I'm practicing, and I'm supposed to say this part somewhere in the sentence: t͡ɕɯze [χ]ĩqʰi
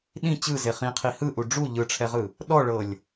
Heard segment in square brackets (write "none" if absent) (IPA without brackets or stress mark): χ